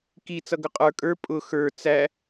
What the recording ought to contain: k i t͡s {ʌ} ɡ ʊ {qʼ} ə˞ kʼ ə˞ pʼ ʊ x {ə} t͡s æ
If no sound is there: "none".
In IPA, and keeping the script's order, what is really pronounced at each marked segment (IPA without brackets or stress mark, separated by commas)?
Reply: ʌ, qʼ, ə˞